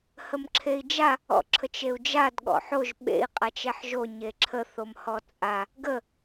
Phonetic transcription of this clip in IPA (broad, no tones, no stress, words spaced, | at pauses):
həmǁʰei̯d͡ʒa | ɔ̰ǁʰət͡ʃeu̯d͡ʒad ɠɔ̰ħoʒ ɓḛi̯ qʼat͡ʃɛħʒo ɲeǁʰə θomhɔt͡sʼa | ɡə